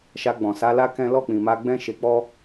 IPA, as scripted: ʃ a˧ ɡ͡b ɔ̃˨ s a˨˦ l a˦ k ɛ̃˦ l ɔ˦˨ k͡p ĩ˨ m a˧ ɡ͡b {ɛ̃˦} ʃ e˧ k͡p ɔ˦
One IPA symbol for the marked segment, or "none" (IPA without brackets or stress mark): ɛ̃˦